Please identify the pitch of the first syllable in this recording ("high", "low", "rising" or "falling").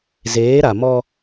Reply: rising